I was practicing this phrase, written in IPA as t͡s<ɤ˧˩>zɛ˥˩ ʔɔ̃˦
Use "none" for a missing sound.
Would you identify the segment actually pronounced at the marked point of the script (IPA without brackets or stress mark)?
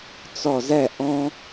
ɔ˧˩